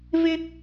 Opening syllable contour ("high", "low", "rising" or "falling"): high